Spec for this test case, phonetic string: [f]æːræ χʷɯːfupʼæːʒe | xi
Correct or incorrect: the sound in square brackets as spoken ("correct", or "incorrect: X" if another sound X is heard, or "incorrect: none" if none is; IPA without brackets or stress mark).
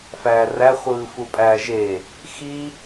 correct